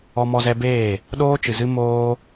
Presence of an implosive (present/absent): present